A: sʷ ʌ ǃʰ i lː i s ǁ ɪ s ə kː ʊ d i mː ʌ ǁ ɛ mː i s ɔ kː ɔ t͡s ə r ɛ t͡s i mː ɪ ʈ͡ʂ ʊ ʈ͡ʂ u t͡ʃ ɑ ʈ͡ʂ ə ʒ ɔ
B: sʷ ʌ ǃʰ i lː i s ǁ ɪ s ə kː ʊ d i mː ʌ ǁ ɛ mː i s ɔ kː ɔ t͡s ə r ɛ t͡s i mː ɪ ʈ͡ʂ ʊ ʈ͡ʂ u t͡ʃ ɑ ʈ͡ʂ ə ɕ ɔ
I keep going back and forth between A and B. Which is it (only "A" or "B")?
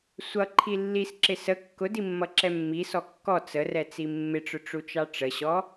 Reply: B